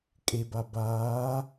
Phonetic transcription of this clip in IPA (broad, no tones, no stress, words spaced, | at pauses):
kʼeba baː